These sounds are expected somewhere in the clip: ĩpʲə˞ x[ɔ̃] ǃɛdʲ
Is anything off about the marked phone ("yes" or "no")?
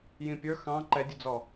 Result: yes